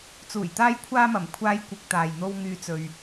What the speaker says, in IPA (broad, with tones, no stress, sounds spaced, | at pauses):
t͡s uː˨˩ j t̪ aː˥ j kʷʰ aː˥ m ɐ˨˩ m kʷʰ aː˥ j kʷ ɪ˧ k̚ t̪ aː˨ j n̪ o˥ w ŋ yː˥ t͡s ɵ˧ ɥ